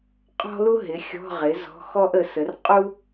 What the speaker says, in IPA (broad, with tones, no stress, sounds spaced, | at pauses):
qʼ ɔ̤˥ l u˥ ɦ ɪ˩˥ xʲ ɔ̤˧˥˧ ʁ ɪ˩˥ z ɔ̤˧˥˧ x ɔ˥ ʔ ə˩˥ s ə˩˥ r qʼ u˥